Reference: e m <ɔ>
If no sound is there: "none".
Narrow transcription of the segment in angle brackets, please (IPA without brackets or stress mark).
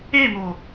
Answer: o